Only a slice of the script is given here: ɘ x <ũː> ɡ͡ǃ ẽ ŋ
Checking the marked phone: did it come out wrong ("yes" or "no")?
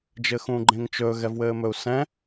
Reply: no